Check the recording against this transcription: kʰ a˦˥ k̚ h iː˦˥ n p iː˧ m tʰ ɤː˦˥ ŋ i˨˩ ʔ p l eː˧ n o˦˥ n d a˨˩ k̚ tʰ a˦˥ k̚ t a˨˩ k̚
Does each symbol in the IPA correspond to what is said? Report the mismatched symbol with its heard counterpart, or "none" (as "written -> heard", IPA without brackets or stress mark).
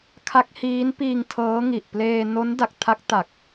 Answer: m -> ŋ